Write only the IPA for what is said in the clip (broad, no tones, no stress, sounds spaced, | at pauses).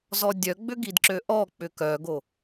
z ɔ dʲ œ ɡ͡b ʏ ɡ i d ǁ ø ʔ ɔ k͡p ʏ k œ ɡ o